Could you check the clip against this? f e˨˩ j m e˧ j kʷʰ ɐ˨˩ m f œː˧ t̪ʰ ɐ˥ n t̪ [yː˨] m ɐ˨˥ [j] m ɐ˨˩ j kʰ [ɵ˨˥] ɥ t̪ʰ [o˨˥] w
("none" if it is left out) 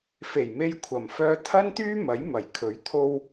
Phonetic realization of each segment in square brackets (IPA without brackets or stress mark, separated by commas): yː˥, j, ɵ˨˥, o˧